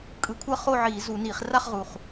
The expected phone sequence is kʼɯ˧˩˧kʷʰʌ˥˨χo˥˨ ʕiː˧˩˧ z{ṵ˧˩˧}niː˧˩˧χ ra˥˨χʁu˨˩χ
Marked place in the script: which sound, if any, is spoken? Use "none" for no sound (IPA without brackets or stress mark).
u˧˩˧